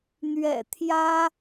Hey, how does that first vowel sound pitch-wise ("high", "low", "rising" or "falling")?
low